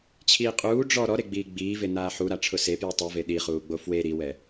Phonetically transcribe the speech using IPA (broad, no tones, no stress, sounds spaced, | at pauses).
t͡ɕʰ iː qʼ uː ɖ͡ʐ ɔ ɾ ɔ ɾ e ɡ͡b iː ɡ͡b iː v e n aː ħ u ɾ a ʈ͡ʂʰ ʊ s e p j u tˤ i v e ɗ i χ uː ɡ͡b o f w e ɾ i w ɛ